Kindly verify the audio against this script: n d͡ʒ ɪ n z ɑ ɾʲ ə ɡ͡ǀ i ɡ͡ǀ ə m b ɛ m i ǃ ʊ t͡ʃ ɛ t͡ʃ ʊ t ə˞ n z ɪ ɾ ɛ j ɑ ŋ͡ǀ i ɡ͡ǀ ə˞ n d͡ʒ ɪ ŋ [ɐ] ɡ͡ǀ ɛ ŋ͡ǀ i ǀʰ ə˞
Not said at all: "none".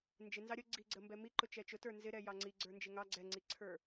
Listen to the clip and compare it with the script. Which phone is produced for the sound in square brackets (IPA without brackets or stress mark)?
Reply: ɑ